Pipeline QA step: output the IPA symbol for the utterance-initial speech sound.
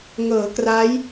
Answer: ŋ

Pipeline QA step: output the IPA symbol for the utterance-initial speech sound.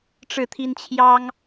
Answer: ʈ͡ʂ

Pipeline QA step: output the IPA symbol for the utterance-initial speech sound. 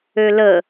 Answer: ø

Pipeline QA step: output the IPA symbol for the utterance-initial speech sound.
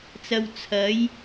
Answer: t͡s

